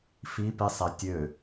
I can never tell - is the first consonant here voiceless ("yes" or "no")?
yes